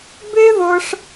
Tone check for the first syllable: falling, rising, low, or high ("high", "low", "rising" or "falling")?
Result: high